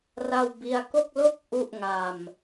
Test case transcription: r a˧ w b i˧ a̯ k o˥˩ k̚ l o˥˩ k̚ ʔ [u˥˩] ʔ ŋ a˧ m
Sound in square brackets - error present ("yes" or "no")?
yes